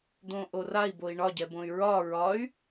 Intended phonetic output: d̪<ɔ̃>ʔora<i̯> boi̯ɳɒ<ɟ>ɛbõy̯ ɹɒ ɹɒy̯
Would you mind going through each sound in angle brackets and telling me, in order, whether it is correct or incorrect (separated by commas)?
incorrect, correct, correct